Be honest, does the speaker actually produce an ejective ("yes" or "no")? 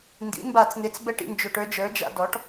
no